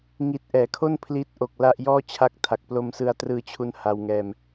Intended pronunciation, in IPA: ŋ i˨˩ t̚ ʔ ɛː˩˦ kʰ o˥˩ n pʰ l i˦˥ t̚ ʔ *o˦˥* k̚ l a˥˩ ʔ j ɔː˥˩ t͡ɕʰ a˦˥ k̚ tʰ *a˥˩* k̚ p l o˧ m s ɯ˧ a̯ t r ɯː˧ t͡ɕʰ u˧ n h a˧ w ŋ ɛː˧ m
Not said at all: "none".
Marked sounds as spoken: o˨˩, a˨˩

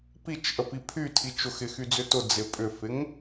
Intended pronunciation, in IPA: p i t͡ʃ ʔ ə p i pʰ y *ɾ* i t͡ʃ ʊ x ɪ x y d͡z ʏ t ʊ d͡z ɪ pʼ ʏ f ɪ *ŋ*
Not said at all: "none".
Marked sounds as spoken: tʰ, ŋ

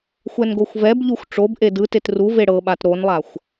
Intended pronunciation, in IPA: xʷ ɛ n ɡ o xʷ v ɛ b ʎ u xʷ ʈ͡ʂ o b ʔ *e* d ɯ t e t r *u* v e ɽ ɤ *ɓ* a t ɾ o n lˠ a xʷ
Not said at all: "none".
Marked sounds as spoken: e, u, ɓ

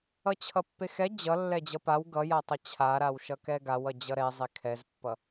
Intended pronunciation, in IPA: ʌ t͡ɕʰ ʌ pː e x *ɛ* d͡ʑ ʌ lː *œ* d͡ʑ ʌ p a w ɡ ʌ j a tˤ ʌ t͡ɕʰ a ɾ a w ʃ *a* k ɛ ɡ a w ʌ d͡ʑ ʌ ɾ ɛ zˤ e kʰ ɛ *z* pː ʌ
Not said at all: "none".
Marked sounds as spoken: ɛ, ɛ, ʌ, z

